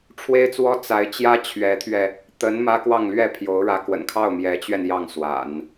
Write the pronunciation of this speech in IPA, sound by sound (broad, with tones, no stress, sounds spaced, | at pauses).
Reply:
ʈ͡ʂʰ w e˥ ɪ̯ t͡s w ɔ˥ t͡s a˧˥ ɪ̯ t͡ɕ j ä˥ t͡ɕʰ ɥ ɛ˧˥ t̪ʰ ɥ ɛ˧ | t̪ ə˧˥ n m ä˥ k w ɑ˥˧ ŋ l ɥ ɛ˥˩ pʰ j o˧˥ ʊ̯ ɻ ä˧˥ k w ə̰˨˩ n kʰ ɑ˥˩ ʊ̯ m j ɛ˧˥ t͡ɕ ɥ ɛ˧ n j ɑ˥˩ ŋ s w a̰˨˩˦ n